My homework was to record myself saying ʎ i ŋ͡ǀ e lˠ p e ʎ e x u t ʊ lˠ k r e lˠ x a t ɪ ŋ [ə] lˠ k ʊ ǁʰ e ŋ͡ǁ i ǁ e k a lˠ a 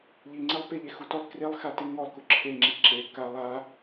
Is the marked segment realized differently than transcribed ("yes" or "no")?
yes